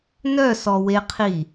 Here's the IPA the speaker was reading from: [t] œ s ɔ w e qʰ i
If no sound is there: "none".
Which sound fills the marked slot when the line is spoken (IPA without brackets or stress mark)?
n